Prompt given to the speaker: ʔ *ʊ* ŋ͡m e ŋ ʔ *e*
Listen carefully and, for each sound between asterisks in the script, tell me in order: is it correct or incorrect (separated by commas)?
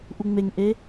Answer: incorrect, correct